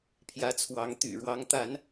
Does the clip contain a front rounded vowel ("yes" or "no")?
yes